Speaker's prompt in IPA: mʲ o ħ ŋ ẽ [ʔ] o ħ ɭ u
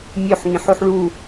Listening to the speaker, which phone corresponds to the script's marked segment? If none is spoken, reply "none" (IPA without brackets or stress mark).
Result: ħ